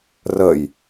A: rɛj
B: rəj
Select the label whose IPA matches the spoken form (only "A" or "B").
B